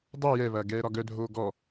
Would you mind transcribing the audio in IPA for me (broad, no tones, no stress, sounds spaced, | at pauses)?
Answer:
dˤ u j ɛ β ɐː ɡ ɛː ɾ ɒ ɡ œ dʱ oː ɡ ɔ